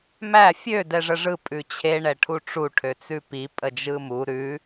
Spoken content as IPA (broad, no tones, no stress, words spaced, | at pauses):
mæ fʲø dɛʐəʐɯ pʼʉt͡ɕʰe ɳɛʈʰuʈ͡ʂu ʈʰøt͡sʉpi pʼəd͡ʒɯmu ɾʉ